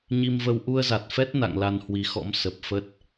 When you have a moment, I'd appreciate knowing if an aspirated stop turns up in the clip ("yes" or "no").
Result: no